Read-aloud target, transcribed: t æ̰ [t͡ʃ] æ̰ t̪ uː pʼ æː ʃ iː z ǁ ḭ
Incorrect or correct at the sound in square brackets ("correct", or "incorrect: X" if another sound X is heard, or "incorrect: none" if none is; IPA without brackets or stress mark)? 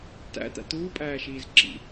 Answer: incorrect: t̪